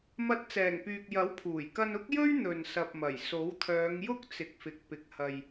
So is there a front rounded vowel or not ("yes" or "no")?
yes